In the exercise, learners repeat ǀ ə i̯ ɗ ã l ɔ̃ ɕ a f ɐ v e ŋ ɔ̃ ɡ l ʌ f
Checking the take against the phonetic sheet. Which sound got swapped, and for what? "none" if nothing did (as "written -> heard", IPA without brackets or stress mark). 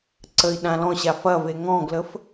ʌ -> ə